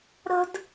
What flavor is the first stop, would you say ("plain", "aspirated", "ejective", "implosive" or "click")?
plain